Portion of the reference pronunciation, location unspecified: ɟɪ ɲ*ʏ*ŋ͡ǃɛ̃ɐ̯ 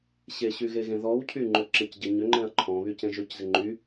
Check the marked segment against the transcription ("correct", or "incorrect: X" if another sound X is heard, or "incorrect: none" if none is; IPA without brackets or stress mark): correct